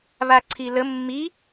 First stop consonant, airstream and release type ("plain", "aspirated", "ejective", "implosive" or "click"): click